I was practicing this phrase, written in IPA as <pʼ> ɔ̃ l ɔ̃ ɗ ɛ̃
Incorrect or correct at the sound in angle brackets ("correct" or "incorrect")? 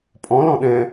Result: correct